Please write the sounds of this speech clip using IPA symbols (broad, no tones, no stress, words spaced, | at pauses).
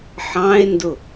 ħɑ̃e̯ndʊ